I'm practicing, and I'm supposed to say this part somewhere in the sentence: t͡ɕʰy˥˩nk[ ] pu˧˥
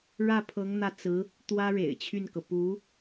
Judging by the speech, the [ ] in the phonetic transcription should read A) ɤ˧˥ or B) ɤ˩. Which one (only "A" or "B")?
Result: B